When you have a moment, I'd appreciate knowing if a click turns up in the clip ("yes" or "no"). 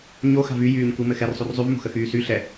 no